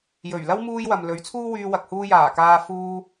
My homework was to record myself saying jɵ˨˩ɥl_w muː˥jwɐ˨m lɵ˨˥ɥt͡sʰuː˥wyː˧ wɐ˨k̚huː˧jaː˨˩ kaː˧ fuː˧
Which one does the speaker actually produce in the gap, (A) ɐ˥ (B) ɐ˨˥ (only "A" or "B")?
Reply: A